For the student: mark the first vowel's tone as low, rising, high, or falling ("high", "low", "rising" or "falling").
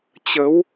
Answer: rising